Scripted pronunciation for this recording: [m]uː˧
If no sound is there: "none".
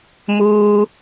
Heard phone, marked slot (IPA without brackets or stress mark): m